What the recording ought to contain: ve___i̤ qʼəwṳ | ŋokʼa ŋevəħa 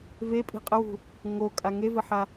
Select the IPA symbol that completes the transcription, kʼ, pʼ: pʼ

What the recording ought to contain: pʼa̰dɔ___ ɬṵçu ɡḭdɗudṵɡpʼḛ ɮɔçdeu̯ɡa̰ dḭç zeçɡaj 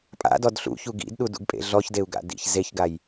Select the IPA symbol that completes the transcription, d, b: d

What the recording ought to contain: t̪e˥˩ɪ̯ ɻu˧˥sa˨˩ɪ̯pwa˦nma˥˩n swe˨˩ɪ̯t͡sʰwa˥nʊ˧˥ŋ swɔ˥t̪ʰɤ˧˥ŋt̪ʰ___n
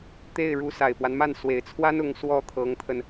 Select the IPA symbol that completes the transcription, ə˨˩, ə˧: ə˧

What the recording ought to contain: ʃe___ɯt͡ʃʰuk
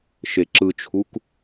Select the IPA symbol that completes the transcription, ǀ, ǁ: ǁ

